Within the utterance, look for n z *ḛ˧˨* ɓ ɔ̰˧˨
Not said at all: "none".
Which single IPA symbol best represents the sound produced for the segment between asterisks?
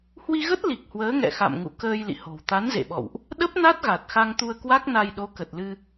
ḛ˧˨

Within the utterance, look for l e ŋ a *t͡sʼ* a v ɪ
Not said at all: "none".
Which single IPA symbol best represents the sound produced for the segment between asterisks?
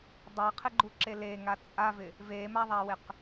t͡sʼ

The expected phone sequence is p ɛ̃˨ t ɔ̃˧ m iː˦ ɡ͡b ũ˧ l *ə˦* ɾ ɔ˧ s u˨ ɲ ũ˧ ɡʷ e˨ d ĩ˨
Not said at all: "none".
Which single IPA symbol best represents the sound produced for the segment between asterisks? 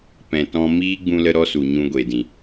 ə˧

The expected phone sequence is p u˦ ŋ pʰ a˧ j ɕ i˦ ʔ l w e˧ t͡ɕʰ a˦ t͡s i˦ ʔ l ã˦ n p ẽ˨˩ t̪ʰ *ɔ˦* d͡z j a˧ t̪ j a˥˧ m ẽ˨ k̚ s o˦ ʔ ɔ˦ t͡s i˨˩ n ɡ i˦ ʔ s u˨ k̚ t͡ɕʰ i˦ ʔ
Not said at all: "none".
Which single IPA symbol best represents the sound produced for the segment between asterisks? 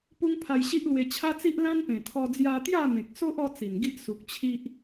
ɔ˧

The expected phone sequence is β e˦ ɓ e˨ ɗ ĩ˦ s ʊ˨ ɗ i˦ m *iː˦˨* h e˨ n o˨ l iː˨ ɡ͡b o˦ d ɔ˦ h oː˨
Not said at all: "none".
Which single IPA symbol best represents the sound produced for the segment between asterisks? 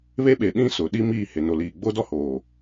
iː˦˨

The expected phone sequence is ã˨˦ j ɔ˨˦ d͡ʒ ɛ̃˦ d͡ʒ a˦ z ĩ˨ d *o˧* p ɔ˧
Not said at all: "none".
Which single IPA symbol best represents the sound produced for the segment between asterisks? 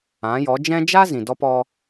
ɔ˧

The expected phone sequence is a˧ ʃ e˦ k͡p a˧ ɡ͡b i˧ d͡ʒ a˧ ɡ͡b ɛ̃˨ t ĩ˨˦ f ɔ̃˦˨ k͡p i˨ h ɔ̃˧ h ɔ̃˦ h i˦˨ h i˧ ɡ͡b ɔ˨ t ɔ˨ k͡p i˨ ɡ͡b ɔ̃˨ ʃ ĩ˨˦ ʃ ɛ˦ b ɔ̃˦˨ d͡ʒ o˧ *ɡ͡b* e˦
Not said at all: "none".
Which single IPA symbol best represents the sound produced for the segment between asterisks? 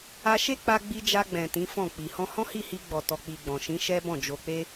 k͡p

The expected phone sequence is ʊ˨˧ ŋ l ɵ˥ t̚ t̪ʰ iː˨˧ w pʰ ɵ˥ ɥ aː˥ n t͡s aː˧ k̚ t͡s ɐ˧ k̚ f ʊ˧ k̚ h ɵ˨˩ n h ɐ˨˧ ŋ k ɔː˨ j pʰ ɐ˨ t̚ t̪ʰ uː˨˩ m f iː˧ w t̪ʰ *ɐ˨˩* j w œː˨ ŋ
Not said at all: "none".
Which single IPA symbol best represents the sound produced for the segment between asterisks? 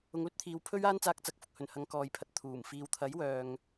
ɐ˨˥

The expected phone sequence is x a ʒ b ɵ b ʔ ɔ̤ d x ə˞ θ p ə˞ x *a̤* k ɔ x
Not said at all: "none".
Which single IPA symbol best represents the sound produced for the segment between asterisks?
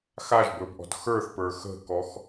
ə̤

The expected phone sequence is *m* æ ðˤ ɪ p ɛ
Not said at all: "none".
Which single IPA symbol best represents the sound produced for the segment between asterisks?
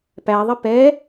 p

